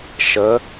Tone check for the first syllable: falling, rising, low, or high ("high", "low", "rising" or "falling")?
rising